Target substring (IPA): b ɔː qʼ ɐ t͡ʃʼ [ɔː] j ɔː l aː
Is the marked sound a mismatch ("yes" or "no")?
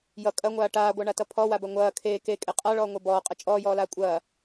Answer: no